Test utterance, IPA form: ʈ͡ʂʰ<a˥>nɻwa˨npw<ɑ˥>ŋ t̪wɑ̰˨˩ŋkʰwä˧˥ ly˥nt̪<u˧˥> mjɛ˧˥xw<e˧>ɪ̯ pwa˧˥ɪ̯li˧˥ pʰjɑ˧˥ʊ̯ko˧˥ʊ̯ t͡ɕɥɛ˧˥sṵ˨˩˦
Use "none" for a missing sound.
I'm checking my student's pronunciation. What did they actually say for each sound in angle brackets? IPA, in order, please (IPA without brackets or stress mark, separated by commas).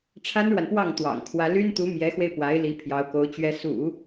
a˥, ɑ˥˩, u˧˥, e˧